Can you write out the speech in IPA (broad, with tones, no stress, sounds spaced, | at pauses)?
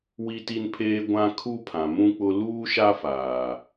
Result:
w i˦ t i˦ n pʰ eː˦ ɡʷ ã˦ kʰ u˦ pʰ ã˨ m ũ˦ k͡p ʊ˦ l uː˦ ʃ a˦ f aː˨